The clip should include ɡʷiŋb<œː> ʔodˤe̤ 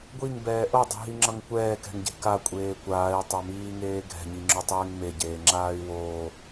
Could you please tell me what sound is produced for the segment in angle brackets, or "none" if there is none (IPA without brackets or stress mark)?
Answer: ɛː